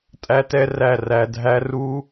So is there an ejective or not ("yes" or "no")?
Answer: yes